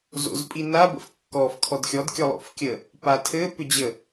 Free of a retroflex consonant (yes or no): yes